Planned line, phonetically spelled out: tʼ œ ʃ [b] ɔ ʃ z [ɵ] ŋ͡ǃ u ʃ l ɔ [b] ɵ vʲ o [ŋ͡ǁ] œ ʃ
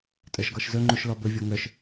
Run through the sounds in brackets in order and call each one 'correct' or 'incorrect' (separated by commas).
incorrect, correct, correct, incorrect